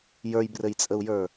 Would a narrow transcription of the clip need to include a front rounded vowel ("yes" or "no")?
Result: no